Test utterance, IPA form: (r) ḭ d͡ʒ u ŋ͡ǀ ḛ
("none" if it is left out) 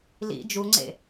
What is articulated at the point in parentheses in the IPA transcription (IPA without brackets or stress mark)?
l